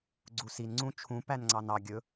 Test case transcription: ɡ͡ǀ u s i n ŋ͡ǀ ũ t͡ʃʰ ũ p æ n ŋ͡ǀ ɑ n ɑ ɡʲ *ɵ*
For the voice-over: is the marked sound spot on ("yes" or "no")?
yes